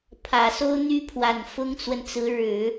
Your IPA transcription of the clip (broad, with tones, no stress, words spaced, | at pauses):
pʰä˨˩so˥ʊ̯n̪y˥pʰwa˨˩n fʊ˥ŋt͡swə˨nt͡sɹ̩˧˥ ɻɻ̩˨˩˦